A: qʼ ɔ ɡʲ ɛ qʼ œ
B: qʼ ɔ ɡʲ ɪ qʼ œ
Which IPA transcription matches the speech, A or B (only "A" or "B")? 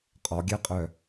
A